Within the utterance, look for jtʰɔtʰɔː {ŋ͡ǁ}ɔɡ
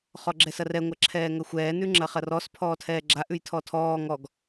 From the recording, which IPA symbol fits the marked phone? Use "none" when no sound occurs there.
ŋ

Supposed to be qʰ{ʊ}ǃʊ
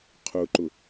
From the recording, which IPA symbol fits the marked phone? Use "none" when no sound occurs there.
ʊ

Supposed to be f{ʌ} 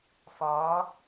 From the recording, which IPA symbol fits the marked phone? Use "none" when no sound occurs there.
ɒ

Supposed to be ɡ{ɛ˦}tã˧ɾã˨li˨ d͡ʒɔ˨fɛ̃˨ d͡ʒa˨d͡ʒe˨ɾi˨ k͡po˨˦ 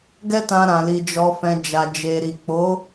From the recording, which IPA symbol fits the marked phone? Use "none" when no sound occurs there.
ɛ˦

